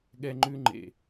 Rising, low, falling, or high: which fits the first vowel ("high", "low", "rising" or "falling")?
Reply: high